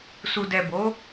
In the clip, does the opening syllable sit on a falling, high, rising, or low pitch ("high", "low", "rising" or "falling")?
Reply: low